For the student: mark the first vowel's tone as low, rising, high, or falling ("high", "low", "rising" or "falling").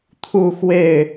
falling